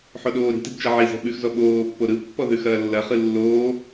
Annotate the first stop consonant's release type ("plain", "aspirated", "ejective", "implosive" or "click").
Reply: implosive